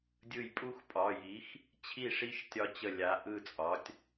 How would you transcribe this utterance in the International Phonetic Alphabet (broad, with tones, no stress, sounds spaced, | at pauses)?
dʲ ɯ˧˩ j pʼ u˥˧ x pʼ ɒ˩˧˩ j i˩˥ x | t͡ɕʰ i˥˩ ʂ i˥˧ ʃ tʲ ɒ˧ t͡ɕ ə˧˩ lʲ a˩˧˩ ʔ ɯ˥˩ t͡sʼ ɒ˩˥ tʲ